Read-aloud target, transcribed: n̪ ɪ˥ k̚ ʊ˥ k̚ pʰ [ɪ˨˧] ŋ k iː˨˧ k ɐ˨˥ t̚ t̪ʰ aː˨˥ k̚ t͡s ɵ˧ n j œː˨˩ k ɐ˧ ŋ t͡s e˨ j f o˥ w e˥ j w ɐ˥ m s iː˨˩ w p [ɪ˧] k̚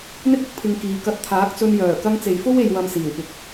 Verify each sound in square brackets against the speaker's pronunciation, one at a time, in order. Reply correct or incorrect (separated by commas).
correct, correct